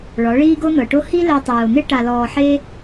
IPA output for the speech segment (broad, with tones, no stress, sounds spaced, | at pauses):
ɭ ɔ˨˦ ɭ iː˦ ɡ o˦ n̪ ɤ˨ ʈ o˦ h i˦ l ɛ˧ tˤ ɯː˨ o̯ n̪ e˦ ʈ a˧ l ɔː˧ ħ e˦